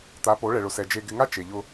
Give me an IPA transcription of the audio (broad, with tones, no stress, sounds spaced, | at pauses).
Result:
t̪ a˨˦ p o˨˦ ɭ ɛ˨ ɭ ʊ˨ s ɛ˨ d͡ʒ e˨ ɡ ɪ˨ ŋ a˦ t͡ʃ e˨ ʎ ʊ˦